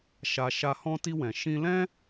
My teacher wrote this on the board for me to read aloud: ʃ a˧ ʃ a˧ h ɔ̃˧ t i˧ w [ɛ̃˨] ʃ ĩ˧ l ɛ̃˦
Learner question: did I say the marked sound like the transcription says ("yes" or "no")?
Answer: yes